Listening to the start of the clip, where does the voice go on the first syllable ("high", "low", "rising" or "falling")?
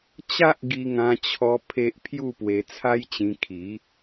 high